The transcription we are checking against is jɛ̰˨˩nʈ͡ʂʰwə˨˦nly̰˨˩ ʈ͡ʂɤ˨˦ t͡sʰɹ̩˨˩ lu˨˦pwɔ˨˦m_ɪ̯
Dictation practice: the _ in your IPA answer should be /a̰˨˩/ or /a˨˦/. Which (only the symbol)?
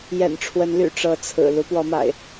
a̰˨˩